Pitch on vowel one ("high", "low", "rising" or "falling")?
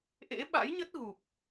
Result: rising